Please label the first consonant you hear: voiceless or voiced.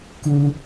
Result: voiceless